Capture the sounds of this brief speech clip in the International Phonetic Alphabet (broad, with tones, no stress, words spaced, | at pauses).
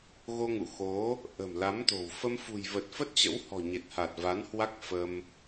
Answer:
ɣo˧ŋṵ˧˨ xo˨˦ | ʔə̤˨˩mla˨˦mt̪o̤˨˩w fə˧mfṳ˨˩j və˨˩t̚fə˦˥t̚t͡ɕə̰˧˥whɔ̤˨˩ ɲe˨˩t̚ha˨˩t̚va˨˦nhwa˦˥k̚ fə˧m